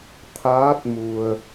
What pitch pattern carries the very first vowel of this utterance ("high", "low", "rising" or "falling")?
rising